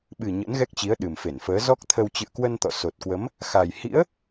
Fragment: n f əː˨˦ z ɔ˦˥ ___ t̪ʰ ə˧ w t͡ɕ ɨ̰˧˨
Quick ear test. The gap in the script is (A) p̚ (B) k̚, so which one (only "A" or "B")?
B